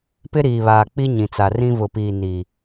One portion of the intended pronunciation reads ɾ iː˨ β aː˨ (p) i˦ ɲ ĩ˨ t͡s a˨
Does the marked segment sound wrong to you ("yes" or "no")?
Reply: yes